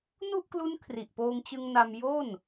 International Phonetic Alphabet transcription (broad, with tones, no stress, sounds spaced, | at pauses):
n u˥˩ ʔ k l u˦˥ n kʰ r i˨˩ ʔ p oː˧ ŋ t͡ɕ ɯ˧ ŋ n a˧ m j o˥˩ n